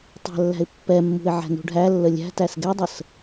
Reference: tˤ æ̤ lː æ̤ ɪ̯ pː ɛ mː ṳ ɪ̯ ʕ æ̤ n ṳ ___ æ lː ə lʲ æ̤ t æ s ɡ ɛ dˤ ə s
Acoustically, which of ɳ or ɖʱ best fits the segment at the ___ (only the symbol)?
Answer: ɖʱ